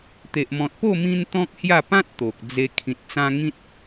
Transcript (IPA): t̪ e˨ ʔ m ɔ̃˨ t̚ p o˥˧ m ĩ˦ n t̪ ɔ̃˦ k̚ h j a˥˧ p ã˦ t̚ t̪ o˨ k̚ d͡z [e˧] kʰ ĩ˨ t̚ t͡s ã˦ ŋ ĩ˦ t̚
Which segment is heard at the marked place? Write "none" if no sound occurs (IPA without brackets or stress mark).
e˧